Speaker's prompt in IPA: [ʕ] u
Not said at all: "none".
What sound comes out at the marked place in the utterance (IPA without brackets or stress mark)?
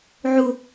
ʕ